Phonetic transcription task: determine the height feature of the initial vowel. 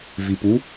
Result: high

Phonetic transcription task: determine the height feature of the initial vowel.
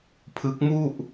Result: high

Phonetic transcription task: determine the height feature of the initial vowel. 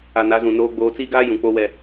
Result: low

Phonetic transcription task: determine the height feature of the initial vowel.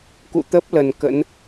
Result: high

